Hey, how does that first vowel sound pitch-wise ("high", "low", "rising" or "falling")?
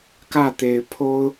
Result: falling